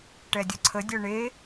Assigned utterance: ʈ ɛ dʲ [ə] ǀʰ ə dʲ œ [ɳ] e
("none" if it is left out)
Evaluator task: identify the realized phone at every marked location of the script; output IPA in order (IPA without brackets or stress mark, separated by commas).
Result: ə, ɳ